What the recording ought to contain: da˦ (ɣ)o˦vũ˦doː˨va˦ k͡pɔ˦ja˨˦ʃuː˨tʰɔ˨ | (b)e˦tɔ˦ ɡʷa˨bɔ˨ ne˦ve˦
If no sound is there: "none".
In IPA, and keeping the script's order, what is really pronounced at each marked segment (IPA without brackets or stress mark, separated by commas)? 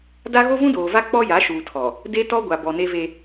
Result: ɣ, d